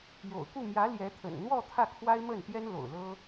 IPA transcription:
j o̰˨˩ ʊ̯ k u˥˩ m j ä˧˥ l j ɛ˧˥ t̪ʰ ə̰˨˩ n n̪ w ɔ˥˧ t̪ʰ ä˥˩ kʰ w a˥ ɪ̯ m ə˥˩ n t̪ j ɛ˥ n l o̰˨˩ ʊ̯ l ɤ˥

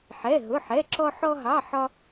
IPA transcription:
ħ ɛ˧˥˧ ɦ ʊ˧˥˧ ħ ɛ˧˥˧ ǁ ɔ˥ ħ ɔ˥ ɦ ɑ˧˥˧ ħ ɒ˥

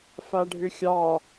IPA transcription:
f a ɖʱ ʏ xʲ ɑ

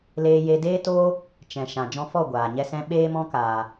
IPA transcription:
l eː˧ j e˧ d eː˦ t oː˦ | t͡ʃ ɛ̃˨ ʃ ã˨ d͡ʒ ɔ̃˧ f ɔ˦˨ ɡʷ aː˨ ɲ ɛ˦ s ɛ̃˦ ɓ eː˦ m ɔ̃˦ k aː˨

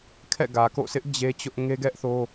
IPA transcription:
kʰ ɛ̰˦˨ ɡ ä˨ k o̰˦˨ s ɪ˦ ʔ d͡ʑ e˦ t͡ɕ ʊ˦ ʔ ŋ e˦ ɡ ɛ˦ ʔ θ o˦

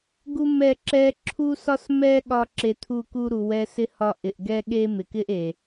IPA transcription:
ɡ u˦ m ɛ˦˨ ǁ ɛ˧ ǁʰ u˦ s ɒ˦ s m ɛ˦ ɠ ɒ˦ ǁ e˧ t̪ʰ u˦˨ k u˦ ɾ u˨ w ɛ˧ s ɪ˦ h ɒ˦ ʔ ɪ˨ ʔ ɡ ɛ˦ ɠ e˦ m ɪ˨ k ɪ˦ ʔ e˨

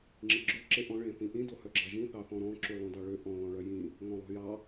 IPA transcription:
ŋ͡ǁ i ɡ͡ǁ o ǁ e ʔ ɔ̃ ɭ ẽ θ ĩ ʔ ĩ d o h œ ɡ͡ǁ ɑ ʒ ĩ θ ɑ θ ɔ̃ ɾ ɔ̃ ǁ y lˠ õ d ɑ ɭ ø ʔ ɔ̃ l ɔ̃ ɭ œ j ĩ | ŋ ɔ̃ lˠ o̤ j ɑ

